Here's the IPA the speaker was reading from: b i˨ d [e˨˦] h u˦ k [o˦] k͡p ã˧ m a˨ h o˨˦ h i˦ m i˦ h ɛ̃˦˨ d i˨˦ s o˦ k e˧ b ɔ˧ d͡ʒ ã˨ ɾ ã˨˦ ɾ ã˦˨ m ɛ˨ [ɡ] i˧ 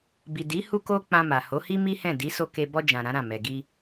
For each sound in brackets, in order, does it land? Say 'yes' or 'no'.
no, yes, yes

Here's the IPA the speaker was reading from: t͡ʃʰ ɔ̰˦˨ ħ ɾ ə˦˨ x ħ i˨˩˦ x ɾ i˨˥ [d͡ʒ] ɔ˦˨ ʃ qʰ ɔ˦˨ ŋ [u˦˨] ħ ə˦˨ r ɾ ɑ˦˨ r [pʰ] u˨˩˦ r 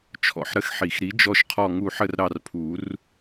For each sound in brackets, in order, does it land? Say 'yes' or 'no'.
yes, yes, yes

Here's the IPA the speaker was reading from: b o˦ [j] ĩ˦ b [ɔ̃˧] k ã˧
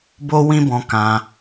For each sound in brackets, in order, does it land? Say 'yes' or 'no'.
no, yes

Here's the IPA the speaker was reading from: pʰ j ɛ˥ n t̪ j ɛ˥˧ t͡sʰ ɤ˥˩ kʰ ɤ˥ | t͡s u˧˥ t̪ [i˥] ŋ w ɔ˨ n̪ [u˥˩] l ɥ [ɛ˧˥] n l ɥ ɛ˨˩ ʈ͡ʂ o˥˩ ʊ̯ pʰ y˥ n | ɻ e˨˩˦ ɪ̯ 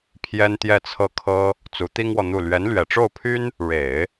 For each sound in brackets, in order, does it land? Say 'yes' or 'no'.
yes, yes, yes

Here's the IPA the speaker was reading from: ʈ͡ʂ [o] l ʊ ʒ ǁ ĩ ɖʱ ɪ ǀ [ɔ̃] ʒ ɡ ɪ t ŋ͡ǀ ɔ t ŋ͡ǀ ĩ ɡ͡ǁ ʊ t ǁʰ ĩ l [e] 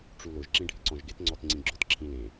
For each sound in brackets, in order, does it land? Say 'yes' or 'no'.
no, yes, no

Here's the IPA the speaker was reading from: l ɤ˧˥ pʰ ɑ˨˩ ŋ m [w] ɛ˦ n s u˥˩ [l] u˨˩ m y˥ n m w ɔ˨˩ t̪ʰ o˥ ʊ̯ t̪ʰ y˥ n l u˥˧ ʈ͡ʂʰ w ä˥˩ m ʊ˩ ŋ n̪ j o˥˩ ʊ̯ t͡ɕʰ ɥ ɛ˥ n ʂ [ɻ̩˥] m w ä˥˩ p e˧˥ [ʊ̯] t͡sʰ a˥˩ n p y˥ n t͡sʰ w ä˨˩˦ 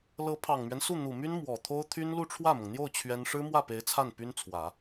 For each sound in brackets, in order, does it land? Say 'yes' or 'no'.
no, no, yes, no

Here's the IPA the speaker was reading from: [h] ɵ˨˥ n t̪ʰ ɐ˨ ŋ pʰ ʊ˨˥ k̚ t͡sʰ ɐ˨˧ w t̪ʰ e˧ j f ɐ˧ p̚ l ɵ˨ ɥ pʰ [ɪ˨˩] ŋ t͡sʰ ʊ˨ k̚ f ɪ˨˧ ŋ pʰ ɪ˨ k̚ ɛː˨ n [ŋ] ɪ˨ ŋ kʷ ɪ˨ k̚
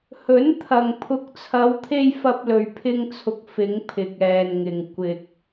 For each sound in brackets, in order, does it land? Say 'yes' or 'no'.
yes, no, yes

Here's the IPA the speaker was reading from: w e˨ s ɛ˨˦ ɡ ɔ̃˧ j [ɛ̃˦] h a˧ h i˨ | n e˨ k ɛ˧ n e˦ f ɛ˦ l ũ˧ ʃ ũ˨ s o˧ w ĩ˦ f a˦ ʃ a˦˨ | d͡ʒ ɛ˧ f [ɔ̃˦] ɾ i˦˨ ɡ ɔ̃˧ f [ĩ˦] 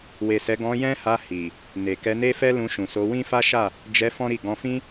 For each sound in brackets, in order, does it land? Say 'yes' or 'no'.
yes, yes, yes

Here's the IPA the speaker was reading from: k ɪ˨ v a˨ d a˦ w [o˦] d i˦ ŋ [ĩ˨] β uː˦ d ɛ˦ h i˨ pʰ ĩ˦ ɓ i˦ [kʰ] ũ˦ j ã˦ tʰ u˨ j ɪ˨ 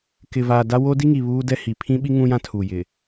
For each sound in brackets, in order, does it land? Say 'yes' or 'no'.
yes, no, no

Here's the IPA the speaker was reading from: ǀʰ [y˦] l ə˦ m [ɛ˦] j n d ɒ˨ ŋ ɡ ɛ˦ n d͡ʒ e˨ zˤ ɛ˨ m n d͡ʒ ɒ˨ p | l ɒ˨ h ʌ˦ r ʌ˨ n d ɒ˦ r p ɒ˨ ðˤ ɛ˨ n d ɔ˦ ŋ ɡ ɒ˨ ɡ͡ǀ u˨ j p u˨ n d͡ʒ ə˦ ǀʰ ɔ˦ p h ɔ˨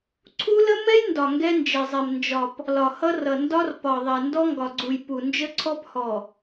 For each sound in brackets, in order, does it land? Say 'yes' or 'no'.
no, yes

